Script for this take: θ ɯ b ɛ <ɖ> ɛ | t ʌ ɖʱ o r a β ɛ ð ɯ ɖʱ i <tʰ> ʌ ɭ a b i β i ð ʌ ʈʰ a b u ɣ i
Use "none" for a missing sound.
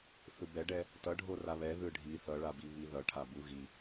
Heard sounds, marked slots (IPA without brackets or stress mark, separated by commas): ɖ, θ